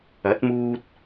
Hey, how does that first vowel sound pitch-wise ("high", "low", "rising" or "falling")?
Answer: rising